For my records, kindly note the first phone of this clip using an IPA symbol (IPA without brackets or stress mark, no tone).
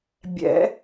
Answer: bʲ